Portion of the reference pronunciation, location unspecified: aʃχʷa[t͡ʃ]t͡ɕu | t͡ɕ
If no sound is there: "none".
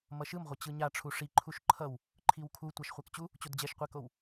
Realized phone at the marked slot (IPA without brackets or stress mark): k